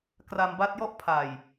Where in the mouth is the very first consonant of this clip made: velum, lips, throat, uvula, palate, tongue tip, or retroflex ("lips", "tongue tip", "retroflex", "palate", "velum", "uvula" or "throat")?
velum